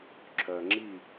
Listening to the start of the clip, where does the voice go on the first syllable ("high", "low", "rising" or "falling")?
low